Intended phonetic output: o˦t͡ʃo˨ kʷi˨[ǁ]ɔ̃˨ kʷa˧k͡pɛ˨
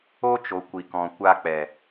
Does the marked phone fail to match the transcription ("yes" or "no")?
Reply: yes